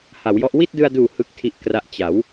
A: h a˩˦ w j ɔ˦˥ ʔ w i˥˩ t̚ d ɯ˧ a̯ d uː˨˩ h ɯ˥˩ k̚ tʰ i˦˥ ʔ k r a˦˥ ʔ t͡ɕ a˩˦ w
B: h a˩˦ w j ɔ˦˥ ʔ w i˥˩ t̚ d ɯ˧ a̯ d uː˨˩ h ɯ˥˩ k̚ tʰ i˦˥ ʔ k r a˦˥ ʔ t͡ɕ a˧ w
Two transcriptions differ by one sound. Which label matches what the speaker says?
A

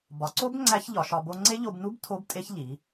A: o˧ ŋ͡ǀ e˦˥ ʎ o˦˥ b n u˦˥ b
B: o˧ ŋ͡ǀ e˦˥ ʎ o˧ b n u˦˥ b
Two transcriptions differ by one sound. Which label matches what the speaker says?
B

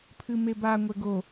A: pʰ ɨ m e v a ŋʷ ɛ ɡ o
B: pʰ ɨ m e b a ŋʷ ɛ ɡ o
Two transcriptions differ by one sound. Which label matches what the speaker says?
B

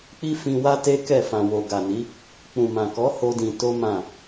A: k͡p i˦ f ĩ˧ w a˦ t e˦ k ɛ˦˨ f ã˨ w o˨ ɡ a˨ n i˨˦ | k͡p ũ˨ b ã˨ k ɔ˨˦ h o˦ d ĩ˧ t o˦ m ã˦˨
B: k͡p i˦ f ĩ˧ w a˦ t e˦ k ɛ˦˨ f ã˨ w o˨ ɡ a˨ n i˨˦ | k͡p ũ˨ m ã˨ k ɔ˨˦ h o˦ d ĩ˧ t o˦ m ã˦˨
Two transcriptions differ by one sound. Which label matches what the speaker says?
B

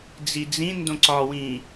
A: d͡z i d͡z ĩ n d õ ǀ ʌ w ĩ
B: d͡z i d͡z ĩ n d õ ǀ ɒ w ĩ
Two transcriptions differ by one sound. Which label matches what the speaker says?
B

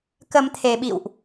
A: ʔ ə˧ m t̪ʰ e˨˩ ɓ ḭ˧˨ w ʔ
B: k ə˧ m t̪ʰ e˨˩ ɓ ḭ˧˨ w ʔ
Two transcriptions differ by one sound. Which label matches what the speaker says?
B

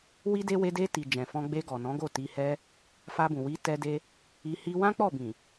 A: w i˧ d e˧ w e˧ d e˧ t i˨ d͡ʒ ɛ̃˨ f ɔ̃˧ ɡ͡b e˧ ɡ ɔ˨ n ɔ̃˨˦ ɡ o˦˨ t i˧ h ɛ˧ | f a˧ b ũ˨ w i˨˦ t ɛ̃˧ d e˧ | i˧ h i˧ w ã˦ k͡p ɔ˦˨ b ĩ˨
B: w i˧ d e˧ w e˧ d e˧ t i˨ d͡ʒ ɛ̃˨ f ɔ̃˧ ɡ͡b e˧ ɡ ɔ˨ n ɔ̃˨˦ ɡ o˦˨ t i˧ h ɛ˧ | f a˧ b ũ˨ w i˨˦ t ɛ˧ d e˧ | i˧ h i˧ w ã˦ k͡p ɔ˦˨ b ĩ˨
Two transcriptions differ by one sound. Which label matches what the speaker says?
B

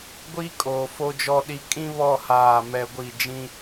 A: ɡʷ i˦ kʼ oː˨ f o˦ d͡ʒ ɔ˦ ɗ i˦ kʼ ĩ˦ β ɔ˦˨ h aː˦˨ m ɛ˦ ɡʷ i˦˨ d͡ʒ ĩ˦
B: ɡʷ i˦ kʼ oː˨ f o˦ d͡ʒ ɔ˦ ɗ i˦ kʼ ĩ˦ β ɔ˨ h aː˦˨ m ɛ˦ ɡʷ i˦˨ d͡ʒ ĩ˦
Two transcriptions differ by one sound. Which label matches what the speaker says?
A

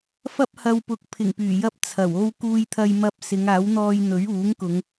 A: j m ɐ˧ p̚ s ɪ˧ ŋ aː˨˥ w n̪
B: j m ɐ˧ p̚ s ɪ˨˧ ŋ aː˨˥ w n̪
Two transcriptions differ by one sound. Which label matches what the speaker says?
B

